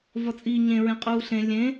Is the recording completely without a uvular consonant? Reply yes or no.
no